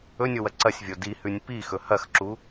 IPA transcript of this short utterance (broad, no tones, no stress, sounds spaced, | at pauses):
ɵ nʲ o w ɐ ǀ ɐ sʲ vʲ o d i h ʉ nʲ p i x ɵ h ɐ x ǁ u